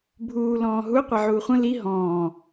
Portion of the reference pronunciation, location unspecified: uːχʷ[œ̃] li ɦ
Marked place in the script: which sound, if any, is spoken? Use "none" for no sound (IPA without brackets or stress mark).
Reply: ə̃